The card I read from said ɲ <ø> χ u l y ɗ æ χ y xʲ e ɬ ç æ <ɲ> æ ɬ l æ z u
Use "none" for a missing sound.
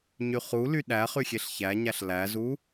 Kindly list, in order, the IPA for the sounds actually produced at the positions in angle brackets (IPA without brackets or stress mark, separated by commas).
y, ɲ